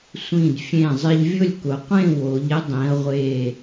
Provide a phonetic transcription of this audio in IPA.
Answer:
sʷĩ˧˩d fʲẽ˧˩ zˤɪ˧ʎvʲʊ˥˧lʲkʊ˩˧ qʷẽ˥˧wo˩˧ʎ ɪ˥dˤĩ˩˧ɐ̯ʁʷe˧˩

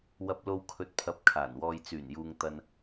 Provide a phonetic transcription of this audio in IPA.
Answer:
wɐ˨p̚lo˨w kʰɵ˨t̚pʰɐ˨p̚ kʰaː˨˩nwɔː˨jt͡syː˨˩njuː˨ŋ t̪ɐ˨n

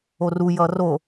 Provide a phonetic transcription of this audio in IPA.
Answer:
oru jʌro

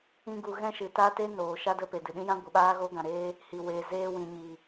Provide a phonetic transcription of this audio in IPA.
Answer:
ĩ˧ ɡu˧ ɣɛ̃˦ʃɨ˨ta˦ te˦ noː˨ ʃa˦də˧pe˨dɨ˨ ɗĩ˦jã˦ ɡʷɨ˨ɓaː˦ɣoː˦ɡã˨ ɾeː˦ | hi˨weː˨ zeː˧wĩ˨ ɲi˨

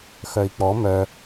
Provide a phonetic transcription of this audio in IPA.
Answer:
xœi̯k͡pɔ mœ

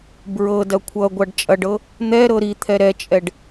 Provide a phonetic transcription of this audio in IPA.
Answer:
bɹɤ dɐkʷʰʌɡʷaɖ t͡ʃʼɐɖɤ | n̪ɛ ɾɤɾit̪ʰɛ ɾɛt͡ʃʼɛɖ

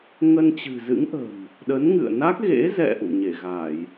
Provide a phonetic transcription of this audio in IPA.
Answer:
ŋə˧nt͡ɕɨ̤˨˩zɨ̰˧˥ŋʔə̤˨˩m | ɗə˨˦nŋɨ̰˧˨ə̯na˦˥k̚ ɣḛ˧˥zɛ̰˧˨ ʔṵ˧˨ɲe˧˩ɣa˧˩˨j

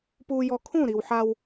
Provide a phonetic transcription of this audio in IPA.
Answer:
puː˧jɔ˧ kʰũ˦˨ɾi˨w ħa˧w

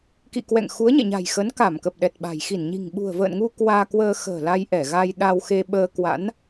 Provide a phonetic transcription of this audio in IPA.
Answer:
kḭ˧˨kwɛ̰˧˨ŋ xu˨˦ə̯ɲɛ̰˧˨ɲa̤˨˩j xə˨˦nka˧˩mkə˨˩p̚ ɗɛ˨˩t̚ɓa̤˨˩j xi˧˩nɲi̤˨˩ŋɓṳ˨˩ə̯ və̰ː˧˨nŋu˧ kwaː˧kwəː˧ xə̤ː˨˩la˧jʔɛ˧˩ ɣa˧jɗa˧wxe˧ ɓəː˧kwa̰˧˥n

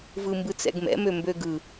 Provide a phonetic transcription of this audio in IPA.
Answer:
vɯmbɯt͡sɛ̰ɡmɛ̰ mømbøɡɯ

